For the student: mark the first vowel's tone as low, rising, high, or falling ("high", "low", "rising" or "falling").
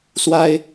high